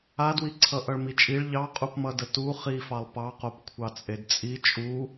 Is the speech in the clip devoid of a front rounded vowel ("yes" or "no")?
yes